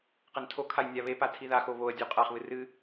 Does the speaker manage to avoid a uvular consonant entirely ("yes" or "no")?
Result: no